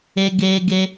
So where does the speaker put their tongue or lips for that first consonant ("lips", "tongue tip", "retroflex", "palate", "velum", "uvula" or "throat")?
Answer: velum